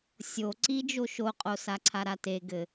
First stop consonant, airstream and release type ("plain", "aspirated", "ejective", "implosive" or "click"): click